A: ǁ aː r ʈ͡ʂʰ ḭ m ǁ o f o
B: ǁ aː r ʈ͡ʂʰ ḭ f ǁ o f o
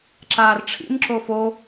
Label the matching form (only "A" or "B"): A